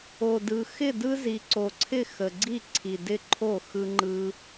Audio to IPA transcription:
o˨˩dɯ˨˩ xɪ˥˩dɯ˦ zi˨˩ǀo˨˩ǀʰɪ˥˩ xə˨˩ɡ͡ǀi˥˩ǀʰi˨˩ dɪ˥˩ ǃʰo˥˩ xɯ˦ŋ͡ǃɯ˦

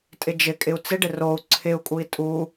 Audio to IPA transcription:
tʼɪd͡ʒɪkʼɪu̯ t͡sɪɖɪ rou̯ ǀʰɪu̯kʼui̯ tʼu

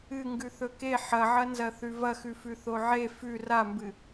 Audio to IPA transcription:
ɨ ŋɡʉθɵke ħɐʕɐnzɐ θʉvɐxʉfʉ θoʕe fʉ rambɨ

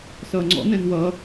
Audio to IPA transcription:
sʌːŋ͡ǀɔ̰nɛ̃n wʌ

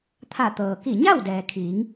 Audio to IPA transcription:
t̪ʰa˧˩t̪ɤː˩ki˧˩ ɲa˥˨w dɛː˩kʰiː˩˧ŋ

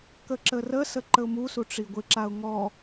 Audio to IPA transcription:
kəǁərəsə ǃəʊ̯musu ʈ͡ʂiɡʷɪǁaʊ̯ ŋɔ

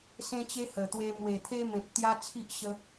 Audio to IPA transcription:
sẽ˦t͡ɕe˦hə˨˩t̪we˧ mwe˨˩t̪ʰe˦mẽ˨p̚ t̪ja˦t͡sʰi˦ʔ ɕə˧

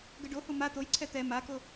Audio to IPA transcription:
ɡəɖohu ma t̪ojǀʰɛ t̪ɛ mako

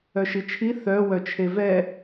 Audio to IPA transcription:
œʃit͡ʃʰi θœ wœt͡ʃʰevɛ

